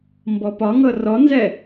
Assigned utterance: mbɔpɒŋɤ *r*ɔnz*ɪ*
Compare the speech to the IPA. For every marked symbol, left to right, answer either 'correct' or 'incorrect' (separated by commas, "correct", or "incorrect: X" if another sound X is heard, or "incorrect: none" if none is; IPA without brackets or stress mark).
correct, incorrect: ɛ